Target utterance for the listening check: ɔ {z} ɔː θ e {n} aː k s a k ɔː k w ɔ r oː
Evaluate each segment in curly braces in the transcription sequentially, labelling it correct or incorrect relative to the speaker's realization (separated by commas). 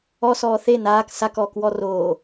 incorrect, correct